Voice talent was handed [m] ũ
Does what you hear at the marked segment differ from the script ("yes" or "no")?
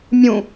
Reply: yes